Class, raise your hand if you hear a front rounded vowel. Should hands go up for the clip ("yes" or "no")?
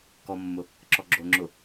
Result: no